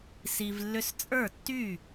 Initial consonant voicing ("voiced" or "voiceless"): voiceless